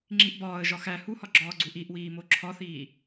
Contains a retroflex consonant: no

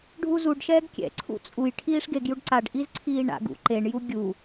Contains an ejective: yes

